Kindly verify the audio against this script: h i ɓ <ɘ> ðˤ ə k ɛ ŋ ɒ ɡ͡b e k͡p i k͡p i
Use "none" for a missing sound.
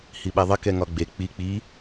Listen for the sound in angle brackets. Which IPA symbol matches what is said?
ɛ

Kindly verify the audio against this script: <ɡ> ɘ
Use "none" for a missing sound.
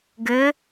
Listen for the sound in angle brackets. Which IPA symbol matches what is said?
ɡ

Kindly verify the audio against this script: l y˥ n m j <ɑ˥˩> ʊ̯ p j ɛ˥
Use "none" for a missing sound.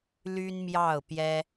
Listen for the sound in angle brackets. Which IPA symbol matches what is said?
ɑ˥˩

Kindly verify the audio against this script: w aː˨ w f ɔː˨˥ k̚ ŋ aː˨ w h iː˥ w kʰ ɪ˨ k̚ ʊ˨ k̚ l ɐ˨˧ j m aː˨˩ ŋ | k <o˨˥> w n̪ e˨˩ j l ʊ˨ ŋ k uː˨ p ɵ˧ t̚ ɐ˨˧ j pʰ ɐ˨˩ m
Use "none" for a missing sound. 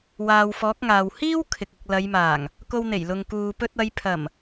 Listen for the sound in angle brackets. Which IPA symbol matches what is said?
o˧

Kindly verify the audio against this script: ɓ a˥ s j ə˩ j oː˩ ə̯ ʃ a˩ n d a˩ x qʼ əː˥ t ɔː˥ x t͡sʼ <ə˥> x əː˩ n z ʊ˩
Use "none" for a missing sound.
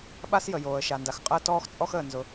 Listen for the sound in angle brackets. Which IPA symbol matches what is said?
ɔ˥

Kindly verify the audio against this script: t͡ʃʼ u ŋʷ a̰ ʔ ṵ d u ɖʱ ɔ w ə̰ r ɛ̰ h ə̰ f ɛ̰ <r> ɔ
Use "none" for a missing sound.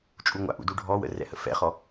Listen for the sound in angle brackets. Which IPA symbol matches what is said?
χ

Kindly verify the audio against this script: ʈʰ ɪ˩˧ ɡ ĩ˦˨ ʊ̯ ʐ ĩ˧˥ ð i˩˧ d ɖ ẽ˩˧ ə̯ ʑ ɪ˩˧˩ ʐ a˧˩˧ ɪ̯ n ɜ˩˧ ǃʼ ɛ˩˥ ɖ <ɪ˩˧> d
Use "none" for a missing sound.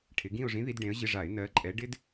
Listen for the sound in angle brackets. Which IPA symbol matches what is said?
ɪ˧˥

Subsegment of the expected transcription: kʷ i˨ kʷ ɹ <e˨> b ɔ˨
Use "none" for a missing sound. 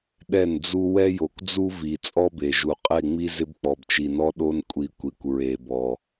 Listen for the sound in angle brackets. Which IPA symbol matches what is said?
e˨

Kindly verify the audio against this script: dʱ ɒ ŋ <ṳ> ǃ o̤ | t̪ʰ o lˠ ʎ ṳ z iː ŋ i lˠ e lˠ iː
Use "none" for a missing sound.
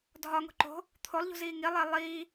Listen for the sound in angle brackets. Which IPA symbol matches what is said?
o̤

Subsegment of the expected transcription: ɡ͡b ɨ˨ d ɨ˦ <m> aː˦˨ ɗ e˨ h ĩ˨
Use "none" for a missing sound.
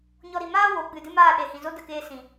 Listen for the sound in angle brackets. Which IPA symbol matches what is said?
m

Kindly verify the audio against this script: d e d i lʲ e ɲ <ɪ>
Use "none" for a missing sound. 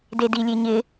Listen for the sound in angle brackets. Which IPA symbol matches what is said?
ɪ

